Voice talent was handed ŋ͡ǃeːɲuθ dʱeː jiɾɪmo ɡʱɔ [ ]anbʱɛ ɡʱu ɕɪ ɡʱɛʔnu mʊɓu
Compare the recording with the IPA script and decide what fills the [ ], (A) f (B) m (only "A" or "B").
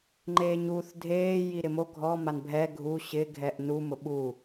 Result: B